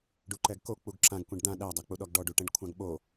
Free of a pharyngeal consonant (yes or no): yes